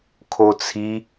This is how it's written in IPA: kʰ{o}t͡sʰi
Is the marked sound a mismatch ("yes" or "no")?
no